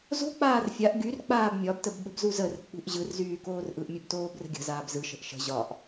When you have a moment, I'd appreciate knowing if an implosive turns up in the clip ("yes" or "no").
yes